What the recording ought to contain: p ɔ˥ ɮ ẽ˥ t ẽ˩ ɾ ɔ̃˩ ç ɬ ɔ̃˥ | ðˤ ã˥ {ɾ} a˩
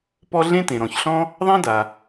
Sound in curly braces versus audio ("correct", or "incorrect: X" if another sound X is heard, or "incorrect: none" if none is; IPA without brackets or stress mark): incorrect: d